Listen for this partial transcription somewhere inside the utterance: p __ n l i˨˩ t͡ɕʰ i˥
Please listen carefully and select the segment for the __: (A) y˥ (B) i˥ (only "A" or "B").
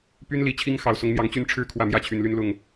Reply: A